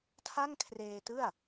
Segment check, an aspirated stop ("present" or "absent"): present